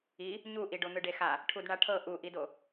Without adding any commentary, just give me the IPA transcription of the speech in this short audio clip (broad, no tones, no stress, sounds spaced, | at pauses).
i | ɲ u ʔ i ɖ o n̪ ɯ ɖ e x a | ʈʰ u d ɳ a ʈʰ ɤ ʔ u ʔ i d o